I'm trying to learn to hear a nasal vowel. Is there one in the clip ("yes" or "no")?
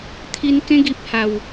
yes